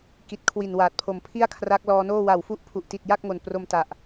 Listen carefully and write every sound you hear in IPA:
k i˨˩ t̚ kʰ w i˨˩ n w aː˨˩ t̚ pʰ o˨˩ m pʰ i˥˩ a̯ kʰ r a˦˥ k̚ l ɔː˧ n oː˥˩ w a˨˩ w f u˦˥ ʔ pʰ u˨˩ ʔ t i˨˩ t̚ j a˥˩ k̚ ŋ o˨˩ n p r o˧ m t a˨˩ ʔ

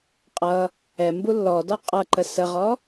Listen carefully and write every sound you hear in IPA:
qʼ ʌ | ɛ m b u lː ɔ d ɔ qʼ ʌ ǃ ə s ə ʁ ɔ

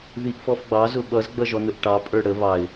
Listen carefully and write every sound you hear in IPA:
ð i ʔ f ɔ f ɡ͡b ɑ z ʊ ɓ ʌ z ɡ͡b ʌ ʒ ɔ n ʊ ʔ ʈ ɑ pʼ ə˞ ɽ ə β ɑ ɪ̯

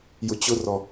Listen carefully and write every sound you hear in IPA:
j ʊ t͡ɕ ʊ r ɔ

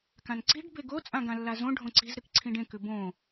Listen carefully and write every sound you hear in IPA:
k ã n ǀ i̤ ɖ b e ɡ o t͡sʼ ã ɡ ã lː a z õ ɖʱ õ ǀ i̤ z ɾ ɨ k ǀʰ ĩ ɖ ẽ k ʉ b õː

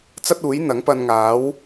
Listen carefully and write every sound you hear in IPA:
t͡s ɐ˥ t̚ uː˨˥ j n̪ ɐ˨˥ ŋ p ɐ˧ n ŋ aː˨˥ w

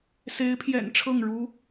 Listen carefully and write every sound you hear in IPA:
s e˧˥ ɪ̯ pʰ j ɛ̰˨˩ n ʈ͡ʂʰ ɤ˥˩ ŋ ɻ u˥

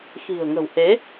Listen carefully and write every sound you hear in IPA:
x i̤˨˩ ə̯ ŋ ə̤˨˩ w h e˨˦

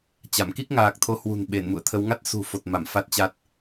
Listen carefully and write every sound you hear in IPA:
t͡ɕ a˧˩ m k i˦˥ k̚ ŋ aː˨˩ k̚ t̪ʰ o˨˦ h w ṳ˨˩ n ɓ e˧˩ n m ṵ˧˨ ə̯ t̪ʰ ə˨˦ w ŋ a˦˥ t̚ s ṳ˨˩ f o˨˩ t̚ m a˧˩ m f a˦˥ t̚ t͡ɕ a˦˥ t̚

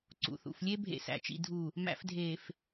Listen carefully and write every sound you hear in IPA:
ǀ ṵ˨ θ ṵ˨ f lʲ e˦ bʱ ḛ˨ s æ̰˨ t͡ʃ ḭ˨ dʱ u˨ | m æ̰˨ f dʱ eː˨ f

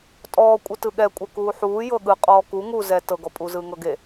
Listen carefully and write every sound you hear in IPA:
tʼ ɔː kʷʼ ɯ t ɯ ɠ ɛ kʷʼ ɛ k uː ħ uː j ɤ ɠ ɯ qʼ ɔː k u ŋ u z ɛ t ɤ ɡ ɔ pʼ u z ɯː ŋ ɤ ɡ e

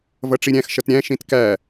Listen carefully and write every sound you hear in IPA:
v ʌ ʈ͡ʂ i ɾʲ æ̃ x ʃ ʌ t ɾʲ æ̃ ʃ ĩ t k æ

